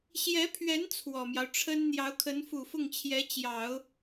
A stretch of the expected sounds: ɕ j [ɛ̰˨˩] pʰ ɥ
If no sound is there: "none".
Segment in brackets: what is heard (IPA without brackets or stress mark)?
ɛ˧˥